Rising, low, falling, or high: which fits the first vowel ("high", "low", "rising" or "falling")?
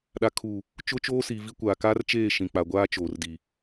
low